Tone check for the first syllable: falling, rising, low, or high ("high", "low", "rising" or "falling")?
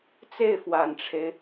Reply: falling